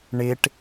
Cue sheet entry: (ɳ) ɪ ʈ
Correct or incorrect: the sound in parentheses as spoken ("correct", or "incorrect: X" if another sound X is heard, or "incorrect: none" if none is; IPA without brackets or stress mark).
correct